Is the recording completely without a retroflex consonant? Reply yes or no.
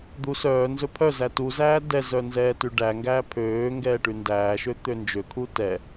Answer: no